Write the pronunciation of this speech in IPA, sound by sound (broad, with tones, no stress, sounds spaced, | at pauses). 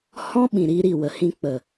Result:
h ɔ̃˦ ɓ ĩ˨ ɾ iː˧ ɾ i˨ w ə˨ h ĩ˧ k͡p ə˨